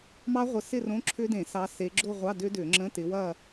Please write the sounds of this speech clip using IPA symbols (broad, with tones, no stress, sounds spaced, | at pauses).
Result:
m ɑ˦˥ ʁʷ ə˨˦ s ɪ˥˧ r õ˧˥˧ ǁʰ ʏ˦˥ d ẽ˧˩˧ s ɑ˨˦ s e˨˦ ɡ͡ǁ o˥˧ ʁʷ ɑ˧˥˧ d ʏ˦˥ d ʏ˧˩˧ ŋ͡ǁ ə̃˧˥˧ t ɪ˨˦ w ɐ˥˧